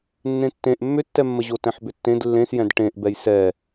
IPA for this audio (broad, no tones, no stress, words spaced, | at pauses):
nːẽtːẽʔ mːʏtːɛmːəʑo tɛ̃ħbʏtːẽd lːẽsjɛ̃d ʈẽʔbɛj sɛ